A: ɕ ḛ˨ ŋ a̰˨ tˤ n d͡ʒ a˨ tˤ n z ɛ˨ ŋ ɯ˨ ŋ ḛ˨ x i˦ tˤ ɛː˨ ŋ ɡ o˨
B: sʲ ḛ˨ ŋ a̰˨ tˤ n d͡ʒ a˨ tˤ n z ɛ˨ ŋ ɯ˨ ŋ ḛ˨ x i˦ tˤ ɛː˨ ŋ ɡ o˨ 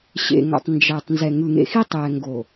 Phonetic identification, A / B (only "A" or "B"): A